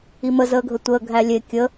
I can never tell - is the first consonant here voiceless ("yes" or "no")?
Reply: no